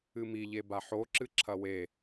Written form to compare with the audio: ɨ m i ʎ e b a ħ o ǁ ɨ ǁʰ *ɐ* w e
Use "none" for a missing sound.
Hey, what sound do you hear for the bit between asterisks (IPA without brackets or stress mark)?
ɐ